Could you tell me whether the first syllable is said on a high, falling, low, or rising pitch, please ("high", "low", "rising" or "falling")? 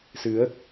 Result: rising